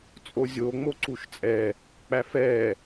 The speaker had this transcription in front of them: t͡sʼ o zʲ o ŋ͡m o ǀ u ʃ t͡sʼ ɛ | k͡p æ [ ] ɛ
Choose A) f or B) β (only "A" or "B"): A